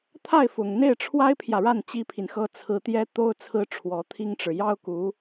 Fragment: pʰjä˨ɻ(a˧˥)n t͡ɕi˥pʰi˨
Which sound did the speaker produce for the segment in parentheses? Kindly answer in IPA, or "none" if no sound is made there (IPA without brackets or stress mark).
a˥˩